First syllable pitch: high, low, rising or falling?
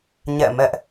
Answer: falling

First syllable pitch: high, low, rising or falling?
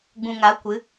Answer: low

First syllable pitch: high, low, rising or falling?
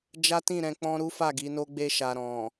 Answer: high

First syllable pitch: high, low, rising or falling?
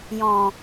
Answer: low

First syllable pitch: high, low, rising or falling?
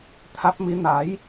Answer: rising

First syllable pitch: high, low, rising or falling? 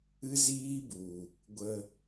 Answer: high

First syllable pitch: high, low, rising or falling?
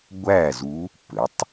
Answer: falling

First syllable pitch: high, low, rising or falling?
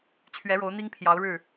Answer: rising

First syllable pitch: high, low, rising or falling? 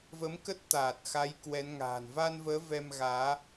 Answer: rising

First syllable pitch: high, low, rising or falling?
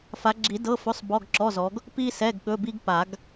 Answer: rising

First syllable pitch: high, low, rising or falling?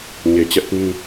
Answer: low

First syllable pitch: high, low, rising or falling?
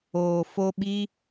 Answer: low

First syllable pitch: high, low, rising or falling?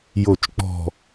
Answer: low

